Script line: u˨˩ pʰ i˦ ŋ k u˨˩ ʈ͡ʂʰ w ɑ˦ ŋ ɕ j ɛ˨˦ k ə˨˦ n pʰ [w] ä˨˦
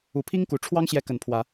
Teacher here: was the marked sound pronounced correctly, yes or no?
yes